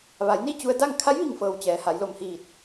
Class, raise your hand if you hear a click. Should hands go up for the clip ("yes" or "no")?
no